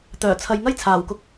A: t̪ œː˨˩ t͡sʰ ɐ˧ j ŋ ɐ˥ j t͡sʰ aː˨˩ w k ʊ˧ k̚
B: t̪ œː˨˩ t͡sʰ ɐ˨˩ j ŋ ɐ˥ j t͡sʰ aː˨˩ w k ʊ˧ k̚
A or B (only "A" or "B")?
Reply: A